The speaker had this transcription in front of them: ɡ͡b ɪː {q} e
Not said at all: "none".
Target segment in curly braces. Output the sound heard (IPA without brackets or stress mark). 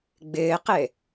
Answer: q